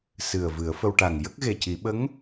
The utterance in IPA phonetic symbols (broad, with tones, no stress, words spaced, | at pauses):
sɨ˨˩ə̯vɨ˨˩˦ə̯fə˧w ʈa˨˩ŋ jə˦˥k̚ɣe˨˩ci˨˩˦ ɓə˧˥ŋ